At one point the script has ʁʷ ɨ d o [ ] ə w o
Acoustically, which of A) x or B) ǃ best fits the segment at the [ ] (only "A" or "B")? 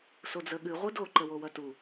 B